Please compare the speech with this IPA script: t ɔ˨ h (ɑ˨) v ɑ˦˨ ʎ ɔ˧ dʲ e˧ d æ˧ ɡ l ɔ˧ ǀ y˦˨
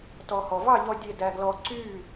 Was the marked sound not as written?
yes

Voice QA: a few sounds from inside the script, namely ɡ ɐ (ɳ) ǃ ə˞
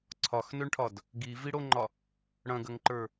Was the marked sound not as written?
yes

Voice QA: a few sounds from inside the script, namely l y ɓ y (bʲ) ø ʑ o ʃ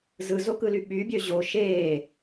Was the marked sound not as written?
no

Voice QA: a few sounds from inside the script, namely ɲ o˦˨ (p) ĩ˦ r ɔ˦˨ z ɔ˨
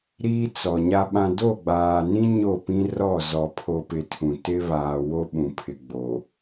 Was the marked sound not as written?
no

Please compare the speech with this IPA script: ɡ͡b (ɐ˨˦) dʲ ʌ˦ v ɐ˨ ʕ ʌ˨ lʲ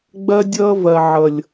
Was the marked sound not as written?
yes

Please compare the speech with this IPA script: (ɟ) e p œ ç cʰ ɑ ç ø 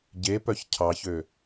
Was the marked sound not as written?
no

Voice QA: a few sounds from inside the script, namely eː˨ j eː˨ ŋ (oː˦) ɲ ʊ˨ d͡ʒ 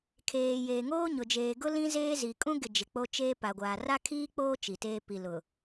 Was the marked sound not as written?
no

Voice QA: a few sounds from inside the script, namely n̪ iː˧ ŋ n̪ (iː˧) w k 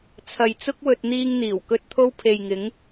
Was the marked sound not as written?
yes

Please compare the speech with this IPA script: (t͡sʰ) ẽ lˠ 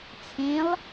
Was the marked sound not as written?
no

